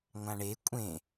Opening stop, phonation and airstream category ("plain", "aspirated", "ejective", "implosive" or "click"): ejective